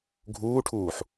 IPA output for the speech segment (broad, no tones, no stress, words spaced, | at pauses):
ɡʱuːʈʰuːħ